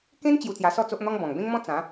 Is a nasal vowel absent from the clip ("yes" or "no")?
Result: no